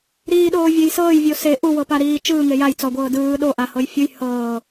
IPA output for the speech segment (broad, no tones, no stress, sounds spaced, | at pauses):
ɾ iː ɗ oː vʲ e j s ɤː j vʲ o s e ʔ u w ɤ p a ɾ iː t͡ʃ ɯː ŋ e j a j t͡s ɔ ɡʷ ɤː d ɯː ɗ o ʔ a h ɤ j fʲ u j h ɤː